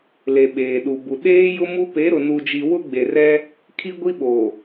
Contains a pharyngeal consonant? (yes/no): no